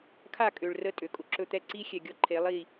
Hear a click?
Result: yes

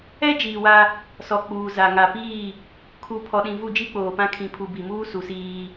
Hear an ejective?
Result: no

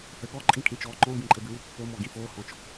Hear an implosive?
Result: yes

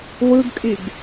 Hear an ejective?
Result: yes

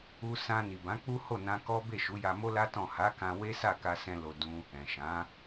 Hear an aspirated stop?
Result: no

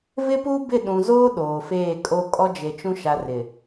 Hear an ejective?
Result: yes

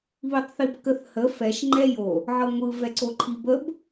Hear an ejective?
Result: no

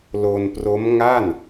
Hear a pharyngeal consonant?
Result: no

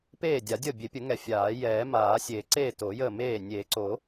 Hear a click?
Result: yes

